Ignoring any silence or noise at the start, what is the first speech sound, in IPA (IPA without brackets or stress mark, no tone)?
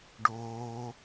ɖ